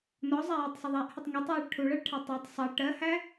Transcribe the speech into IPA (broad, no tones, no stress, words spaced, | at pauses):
nɔzˤæ jɪtˤsˤəðˤæʔhətˤ ŋɛtˤjɑɭ ʈʰuɭɜɭʈʰæ tˤætˤ sˤɑ ʈɜhæ